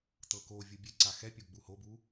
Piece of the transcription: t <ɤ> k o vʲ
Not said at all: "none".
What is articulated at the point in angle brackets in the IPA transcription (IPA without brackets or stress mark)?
ɤ